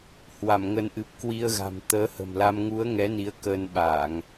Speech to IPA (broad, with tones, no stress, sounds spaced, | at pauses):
h w a˧˩ m ŋ ə˨˦ n ʔ ɨ˨˩ p̚ k w i˧ ə̯ ɣ a̤˨˩ m t̪ əː˨˦ h ə̤˨˩ m l a˧ m ŋ u˨˦ ə̯ ŋ ɛ˨˦ n i˨˦ ə̯ k əː˧ n ɓ aː˧˩˨ ŋ